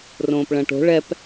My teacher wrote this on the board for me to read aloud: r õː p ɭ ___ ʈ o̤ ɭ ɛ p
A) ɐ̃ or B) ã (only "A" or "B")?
A